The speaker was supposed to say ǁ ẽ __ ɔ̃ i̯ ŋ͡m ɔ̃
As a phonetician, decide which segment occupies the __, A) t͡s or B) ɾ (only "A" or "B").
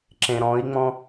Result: B